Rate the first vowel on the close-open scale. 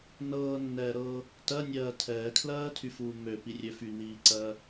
mid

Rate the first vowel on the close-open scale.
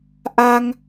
open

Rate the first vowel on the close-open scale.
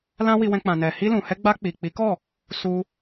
open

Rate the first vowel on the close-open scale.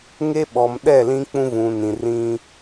mid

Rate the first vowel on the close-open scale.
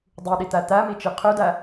close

